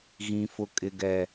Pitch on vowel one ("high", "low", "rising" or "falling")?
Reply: low